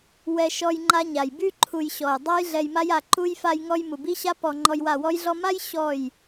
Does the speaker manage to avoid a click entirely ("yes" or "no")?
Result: no